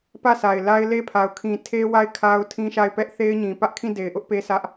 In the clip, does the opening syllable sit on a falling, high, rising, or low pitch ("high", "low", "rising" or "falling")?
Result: falling